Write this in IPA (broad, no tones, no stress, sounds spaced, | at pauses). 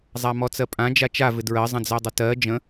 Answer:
zˤ a m ɔ t͡s ɜ pʼ ã d͡ʒ a t͡ʃ a v ɪ d ɹ ɜ zˤ ə̃ d͡z ɜ dˤ ə t ɜ d͡ʒ ə̃